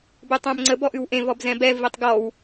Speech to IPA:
b ʉ tˤ ɛ̃ m ŋ͡ǀ ə b ɔ ʔ ʉ w ʔ ẽ v ɔ b z ɛ̃ b ɛ v i tˤ ɡ ɔ w

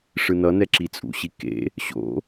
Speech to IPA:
ʂ ɯ n ʌ n ɛ ǁ i t͡sʼ ṵ ɕ i k ḛ | ɕ o̰

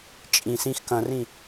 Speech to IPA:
t͡ʃʼ ĩ s ĩ x k ɐ̃ r ĩ

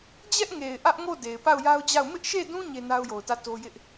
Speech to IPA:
d͡ʑ ɛ˦ ʔ ŋ e˨ ɪ̯ ʔ ä˦ ʔ ŋ o˦˨ d e˨ ɪ̯ p a˦˨ ʊ̯ j a˦ ʊ̯ d͡ʑ a˦˨ ʊ̯ m ɪ˦ ʔ ʃ e˦˨ d ũ˦ ɲ e˦ n a˦ ʊ̯ j o˨ ʊ̯ t ä˦˨ t o˦ j ɪ˦ ʔ

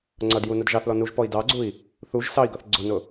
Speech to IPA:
ŋ͡ǀ ʌ d j u n ə d ʒ ɑ θ l ɔ n u ʒ p ɔ i̯ d ɑ ɡ͡ǀ u i̯ | θ u ʒ s ɑ i̯ ɡ ʌ θ ɡ͡ǀ ʊ n ʊ

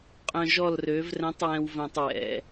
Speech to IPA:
qʼ œ̃˧ ʒ ɔ˦˨ l r ø˨˦ v r ɛ̃˨˦ tˤ w ɛ̃˨ w v œ̃˨ tˤ w ɛ̰˨˦

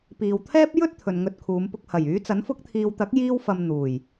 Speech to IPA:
p iː˨ w t̪ʰ ɛː˥ p̚ j ɵ˥ t̚ t̪ʰ ɵ˨ n ŋ ɵ˧ t̚ kʰ uː˨˧ m p ʊ˧ k̚ h ɐ˨˩ j yː˨˥ t͡s ɐ˨˥ n f ʊ˧ k̚ t̪ʰ iː˨ w t̪ ɐ˨˥ k̚ j iː˧ w f ɐ˨ m n̪ uː˨˩ j

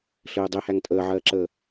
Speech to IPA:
ɬ ɘː dˤ e h æ ŋ tʼ əː ʕ ɜː ǁ əː

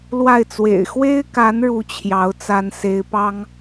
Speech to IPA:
l w a˥˩ ɪ̯ t͡s w ḛ˨˩ ɪ̯ x w e˥ ɪ̯ k a˧˥ n ɻ u˥ t͡ɕʰ j ɑ˧˥ ʊ̯ t͡s a˥ n s e˧˥ ɪ̯ p ɑ˥ ŋ

